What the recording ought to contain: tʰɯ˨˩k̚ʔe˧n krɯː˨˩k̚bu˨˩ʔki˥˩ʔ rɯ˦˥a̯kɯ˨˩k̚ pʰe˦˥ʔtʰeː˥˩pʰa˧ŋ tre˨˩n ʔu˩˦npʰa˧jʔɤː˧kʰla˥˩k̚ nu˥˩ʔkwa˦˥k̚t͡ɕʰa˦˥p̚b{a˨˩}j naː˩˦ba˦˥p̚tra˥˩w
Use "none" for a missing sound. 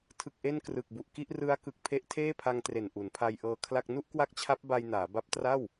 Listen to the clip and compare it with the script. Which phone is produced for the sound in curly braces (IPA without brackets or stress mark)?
a˧